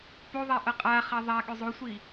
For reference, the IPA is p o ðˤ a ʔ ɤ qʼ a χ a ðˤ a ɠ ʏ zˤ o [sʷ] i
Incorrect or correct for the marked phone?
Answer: correct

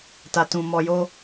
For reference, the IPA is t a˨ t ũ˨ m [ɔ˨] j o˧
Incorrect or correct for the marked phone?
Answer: correct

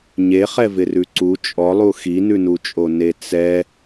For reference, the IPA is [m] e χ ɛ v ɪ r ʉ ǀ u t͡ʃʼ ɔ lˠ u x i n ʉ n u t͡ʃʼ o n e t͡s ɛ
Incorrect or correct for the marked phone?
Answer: incorrect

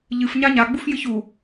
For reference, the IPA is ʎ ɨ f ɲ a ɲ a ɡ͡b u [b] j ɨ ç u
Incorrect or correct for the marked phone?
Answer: incorrect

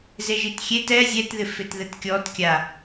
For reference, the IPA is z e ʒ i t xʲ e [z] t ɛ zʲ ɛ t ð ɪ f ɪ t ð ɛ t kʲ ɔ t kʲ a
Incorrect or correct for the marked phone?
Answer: incorrect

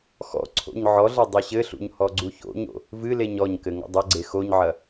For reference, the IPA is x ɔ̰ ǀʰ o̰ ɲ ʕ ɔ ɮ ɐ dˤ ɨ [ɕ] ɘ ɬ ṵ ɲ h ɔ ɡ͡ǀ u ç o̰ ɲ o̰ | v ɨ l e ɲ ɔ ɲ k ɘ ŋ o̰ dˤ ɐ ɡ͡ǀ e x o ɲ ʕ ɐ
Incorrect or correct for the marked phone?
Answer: correct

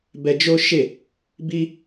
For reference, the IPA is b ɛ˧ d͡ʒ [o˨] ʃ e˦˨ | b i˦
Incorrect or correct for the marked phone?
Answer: incorrect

